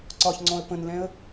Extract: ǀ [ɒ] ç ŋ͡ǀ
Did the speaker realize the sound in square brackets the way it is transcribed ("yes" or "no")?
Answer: yes